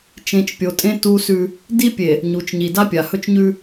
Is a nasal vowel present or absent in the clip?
present